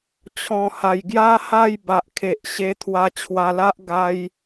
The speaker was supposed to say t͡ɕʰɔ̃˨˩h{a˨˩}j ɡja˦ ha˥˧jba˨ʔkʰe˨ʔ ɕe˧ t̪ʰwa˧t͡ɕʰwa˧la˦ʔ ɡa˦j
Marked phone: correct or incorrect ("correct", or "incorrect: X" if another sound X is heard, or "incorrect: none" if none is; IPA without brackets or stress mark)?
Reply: correct